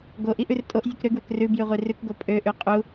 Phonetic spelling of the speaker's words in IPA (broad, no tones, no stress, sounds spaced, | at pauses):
ɡ o ʔ i ʔ ʉ r tʼ o ʔ zʲ ʉ k ɾ ø ɡ w ø k r ʉ b j ʉ ʁʷ i r ʉ k ɡ o pʼ ø ʔ ʉ qʼ u